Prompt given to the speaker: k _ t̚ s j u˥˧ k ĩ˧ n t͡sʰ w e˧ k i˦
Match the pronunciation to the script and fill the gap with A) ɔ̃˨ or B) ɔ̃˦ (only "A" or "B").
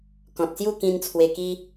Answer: A